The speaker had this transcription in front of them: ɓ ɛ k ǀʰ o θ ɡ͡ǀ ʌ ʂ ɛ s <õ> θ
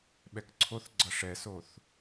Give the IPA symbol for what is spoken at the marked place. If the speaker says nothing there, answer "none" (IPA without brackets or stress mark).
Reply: o